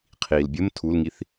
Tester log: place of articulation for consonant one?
uvular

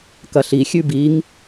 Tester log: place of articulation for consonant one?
velar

